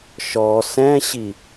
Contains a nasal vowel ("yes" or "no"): yes